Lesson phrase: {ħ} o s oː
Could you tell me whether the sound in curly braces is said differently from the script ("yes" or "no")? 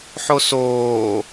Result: no